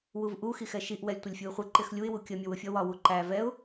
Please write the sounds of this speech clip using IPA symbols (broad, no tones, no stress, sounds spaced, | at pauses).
w u v ʔ u x i x ɛ ʃ i ʔ w ɛ lʲ tʷ ɪ lʲ fʲ u ɪ̯ χʷ ɪ ǃ ɪ x lʲ u ɪ̯ w u kʲ ə mʲ ə w ʊ fʲ ʌ w ɒ w u ǃ æ v ɛ ʊ̯